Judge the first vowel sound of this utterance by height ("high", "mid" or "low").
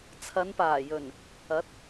low